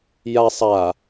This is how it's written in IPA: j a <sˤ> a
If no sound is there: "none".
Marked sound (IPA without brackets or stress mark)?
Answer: sˤ